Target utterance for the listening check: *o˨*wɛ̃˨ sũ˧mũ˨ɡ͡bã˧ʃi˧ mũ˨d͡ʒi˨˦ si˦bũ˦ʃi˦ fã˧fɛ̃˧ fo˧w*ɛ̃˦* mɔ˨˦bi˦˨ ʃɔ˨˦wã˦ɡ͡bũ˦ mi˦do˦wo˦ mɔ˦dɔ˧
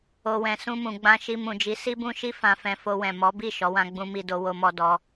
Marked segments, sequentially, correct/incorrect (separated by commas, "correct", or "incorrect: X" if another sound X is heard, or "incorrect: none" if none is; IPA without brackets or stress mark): correct, incorrect: ɛ̃˨